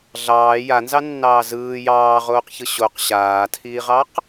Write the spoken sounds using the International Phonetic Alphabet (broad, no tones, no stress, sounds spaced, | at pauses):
ɮ ɑː j a n z ɑ nː ɑː z ɯː j ɑː ʁ oː q ç ɯ ɕ o q ɕ aː tʰ iː ʁ ɑ q